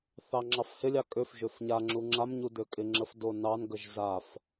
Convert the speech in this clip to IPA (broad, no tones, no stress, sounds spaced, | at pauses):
θ ɑ ŋ͡ǁ ɑ f h ɪ lʲ ɑ kʼ ø f ʒ ø f ɲ a ŋ͡ǁ u ŋ͡ǁ a m ɲ u d ø kʼ ɪ ŋ͡ǁ ə f d o n ɑ n ɡ ə ʒ z a f